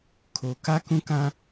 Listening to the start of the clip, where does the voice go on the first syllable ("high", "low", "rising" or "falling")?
low